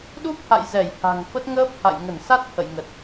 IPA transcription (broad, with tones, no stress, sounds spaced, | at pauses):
ɗ u˦˥ p̚ h a̰˧˨ j z ɛ˧˩ j h a̤˨˩ ŋ f ə˦˥ t̚ ŋ əː˦˥ p̚ h a̰˧˨ j ŋ ə˧˩ n s a˦˥ t̚ h ə̰˧˨ j ŋ ə˨˩ t̚